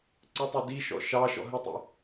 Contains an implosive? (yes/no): no